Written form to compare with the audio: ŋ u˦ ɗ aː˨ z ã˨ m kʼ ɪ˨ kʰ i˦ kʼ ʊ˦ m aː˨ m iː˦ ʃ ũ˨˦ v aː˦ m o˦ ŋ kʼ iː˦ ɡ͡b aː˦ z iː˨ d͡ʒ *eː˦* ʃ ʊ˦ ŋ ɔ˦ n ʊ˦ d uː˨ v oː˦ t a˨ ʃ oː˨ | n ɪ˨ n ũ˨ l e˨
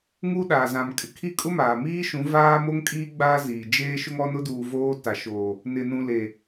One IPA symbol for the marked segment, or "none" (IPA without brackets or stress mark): eː˦